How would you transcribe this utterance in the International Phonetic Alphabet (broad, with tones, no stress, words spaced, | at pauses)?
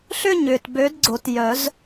ɬʏ˥˧ ɲʏː˨t bø˨˥d ɡ͡ǀo˨˩˦t jœ˨˩˦z